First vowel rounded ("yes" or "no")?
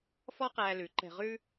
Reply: yes